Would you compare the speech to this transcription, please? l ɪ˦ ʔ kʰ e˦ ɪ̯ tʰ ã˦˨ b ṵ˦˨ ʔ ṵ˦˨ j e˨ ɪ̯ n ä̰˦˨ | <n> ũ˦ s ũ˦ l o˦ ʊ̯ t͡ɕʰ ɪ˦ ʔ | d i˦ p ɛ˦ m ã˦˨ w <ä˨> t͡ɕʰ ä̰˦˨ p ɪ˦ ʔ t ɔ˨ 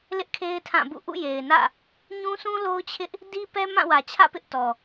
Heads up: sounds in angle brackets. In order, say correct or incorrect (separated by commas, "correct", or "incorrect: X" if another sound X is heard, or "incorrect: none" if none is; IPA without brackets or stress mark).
incorrect: ɲ, correct